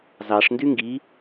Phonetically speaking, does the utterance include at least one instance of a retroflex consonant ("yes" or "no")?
yes